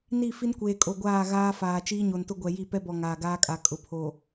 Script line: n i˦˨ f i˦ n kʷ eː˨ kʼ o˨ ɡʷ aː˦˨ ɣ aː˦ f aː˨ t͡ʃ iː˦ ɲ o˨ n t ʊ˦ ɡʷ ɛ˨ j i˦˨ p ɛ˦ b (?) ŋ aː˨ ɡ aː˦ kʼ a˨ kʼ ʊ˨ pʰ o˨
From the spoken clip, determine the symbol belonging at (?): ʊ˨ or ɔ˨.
ɔ˨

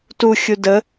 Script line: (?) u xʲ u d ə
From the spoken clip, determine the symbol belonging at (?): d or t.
t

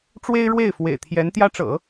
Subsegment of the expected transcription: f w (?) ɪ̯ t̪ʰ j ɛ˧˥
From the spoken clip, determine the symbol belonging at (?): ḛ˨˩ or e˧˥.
ḛ˨˩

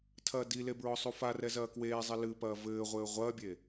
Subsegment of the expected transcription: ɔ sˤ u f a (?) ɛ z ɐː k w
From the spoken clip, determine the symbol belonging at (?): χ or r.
r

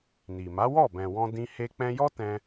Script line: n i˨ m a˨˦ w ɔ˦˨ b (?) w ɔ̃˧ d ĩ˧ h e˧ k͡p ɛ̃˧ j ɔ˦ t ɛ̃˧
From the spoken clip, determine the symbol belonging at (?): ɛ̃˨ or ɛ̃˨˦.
ɛ̃˨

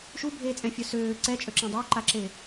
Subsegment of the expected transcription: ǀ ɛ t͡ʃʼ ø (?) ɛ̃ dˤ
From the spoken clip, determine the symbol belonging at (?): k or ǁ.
ǁ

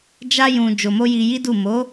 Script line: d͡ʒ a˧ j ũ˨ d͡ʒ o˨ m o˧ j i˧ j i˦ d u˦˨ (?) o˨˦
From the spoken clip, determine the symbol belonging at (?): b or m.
m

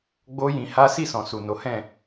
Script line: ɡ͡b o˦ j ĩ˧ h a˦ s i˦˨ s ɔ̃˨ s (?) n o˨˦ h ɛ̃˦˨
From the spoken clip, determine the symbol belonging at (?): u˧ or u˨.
u˨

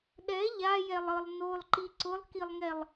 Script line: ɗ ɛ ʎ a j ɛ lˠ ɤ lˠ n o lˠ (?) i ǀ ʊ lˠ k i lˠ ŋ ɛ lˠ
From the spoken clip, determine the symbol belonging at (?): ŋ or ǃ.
ǃ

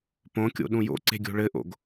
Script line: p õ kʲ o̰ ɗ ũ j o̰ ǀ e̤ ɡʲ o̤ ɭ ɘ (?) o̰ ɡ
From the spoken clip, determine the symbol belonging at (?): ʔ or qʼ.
ʔ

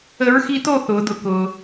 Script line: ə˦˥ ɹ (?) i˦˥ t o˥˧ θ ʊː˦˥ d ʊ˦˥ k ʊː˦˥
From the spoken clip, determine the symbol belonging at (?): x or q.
x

